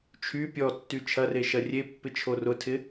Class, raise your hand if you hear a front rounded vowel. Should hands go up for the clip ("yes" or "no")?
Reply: yes